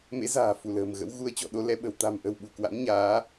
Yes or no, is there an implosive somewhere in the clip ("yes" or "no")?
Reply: yes